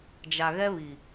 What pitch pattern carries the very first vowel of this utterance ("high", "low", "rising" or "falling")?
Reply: low